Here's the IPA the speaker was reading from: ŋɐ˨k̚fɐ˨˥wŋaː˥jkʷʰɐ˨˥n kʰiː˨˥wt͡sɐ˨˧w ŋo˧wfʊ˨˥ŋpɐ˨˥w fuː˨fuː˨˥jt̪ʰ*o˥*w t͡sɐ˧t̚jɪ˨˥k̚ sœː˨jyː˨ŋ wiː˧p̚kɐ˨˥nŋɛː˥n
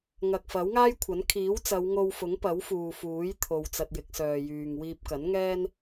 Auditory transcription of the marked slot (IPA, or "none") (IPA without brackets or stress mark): o˨